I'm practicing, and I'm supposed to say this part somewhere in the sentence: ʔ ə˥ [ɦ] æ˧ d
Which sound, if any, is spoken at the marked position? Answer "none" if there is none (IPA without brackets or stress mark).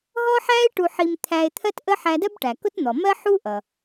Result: ħ